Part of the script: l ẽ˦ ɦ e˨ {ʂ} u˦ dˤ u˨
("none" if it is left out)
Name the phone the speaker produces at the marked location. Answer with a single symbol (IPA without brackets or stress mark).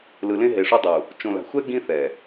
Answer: ʂ